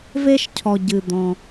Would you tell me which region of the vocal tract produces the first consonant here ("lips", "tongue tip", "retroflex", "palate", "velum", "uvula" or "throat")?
lips